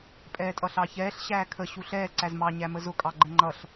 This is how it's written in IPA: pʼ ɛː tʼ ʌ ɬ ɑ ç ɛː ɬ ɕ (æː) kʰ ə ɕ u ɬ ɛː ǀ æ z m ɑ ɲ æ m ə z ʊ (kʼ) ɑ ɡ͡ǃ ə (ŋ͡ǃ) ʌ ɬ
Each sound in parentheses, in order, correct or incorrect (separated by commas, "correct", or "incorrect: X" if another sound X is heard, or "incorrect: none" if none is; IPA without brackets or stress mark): correct, correct, correct